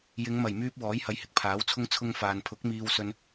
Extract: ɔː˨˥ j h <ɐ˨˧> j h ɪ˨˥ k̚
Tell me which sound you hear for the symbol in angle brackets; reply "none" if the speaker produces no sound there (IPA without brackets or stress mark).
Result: ɐ˨˧